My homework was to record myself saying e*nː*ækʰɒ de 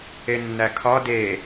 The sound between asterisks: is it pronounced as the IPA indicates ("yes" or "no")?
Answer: yes